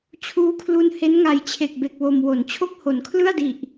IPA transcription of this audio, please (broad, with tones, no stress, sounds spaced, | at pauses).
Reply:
t͡ɕʰ uː˧ kʰ l u˧ n h e˦˥ n ŋ a˨˩ j t͡ɕʰ e˨˩ k̚ b e˨˩ k̚ w o˧ m w o˨˩ n t͡ɕʰ o˥˩ k̚ h o˩˦ n kʰ l ɯ˥˩ a̯ d i˨˩ ʔ